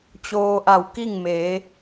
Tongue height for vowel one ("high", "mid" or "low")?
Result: mid